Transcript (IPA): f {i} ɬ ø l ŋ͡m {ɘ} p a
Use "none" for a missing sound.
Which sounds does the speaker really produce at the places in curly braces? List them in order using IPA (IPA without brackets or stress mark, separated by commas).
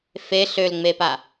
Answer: e, e